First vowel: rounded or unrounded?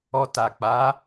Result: rounded